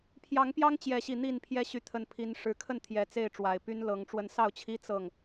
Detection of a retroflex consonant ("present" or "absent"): present